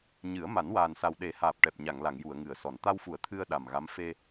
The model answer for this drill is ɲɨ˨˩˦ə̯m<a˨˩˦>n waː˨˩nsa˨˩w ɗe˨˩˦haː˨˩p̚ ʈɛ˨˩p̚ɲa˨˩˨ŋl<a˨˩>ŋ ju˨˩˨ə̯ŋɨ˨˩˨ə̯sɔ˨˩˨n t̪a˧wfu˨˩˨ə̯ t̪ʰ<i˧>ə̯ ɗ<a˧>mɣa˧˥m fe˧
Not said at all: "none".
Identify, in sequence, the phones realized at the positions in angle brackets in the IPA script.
a˨˩˦, a˨˩˨, ɨ˧, a˨˩

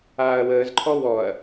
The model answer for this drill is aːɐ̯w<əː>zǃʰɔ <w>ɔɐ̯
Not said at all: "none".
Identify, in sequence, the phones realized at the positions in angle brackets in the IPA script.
əː, w

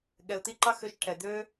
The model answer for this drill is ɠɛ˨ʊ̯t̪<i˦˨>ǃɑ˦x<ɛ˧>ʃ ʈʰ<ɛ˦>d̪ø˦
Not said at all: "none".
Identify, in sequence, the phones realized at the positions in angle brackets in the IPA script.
i˦˨, ø˧, ɛ˨

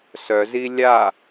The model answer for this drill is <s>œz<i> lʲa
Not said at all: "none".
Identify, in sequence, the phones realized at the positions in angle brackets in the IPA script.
s, i

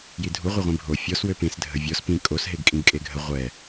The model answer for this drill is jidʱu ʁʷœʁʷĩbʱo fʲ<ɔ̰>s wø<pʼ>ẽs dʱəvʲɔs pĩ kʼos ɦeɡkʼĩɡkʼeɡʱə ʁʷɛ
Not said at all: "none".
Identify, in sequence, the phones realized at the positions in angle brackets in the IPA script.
ɔ, p

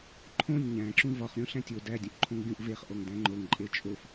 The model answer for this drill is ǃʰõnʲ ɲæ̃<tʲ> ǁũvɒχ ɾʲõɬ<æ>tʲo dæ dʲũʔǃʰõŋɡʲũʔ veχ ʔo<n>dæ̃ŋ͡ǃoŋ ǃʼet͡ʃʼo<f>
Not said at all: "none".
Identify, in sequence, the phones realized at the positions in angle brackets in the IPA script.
none, æ̃, ŋ, f

